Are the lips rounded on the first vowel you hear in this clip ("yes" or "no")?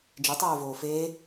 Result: no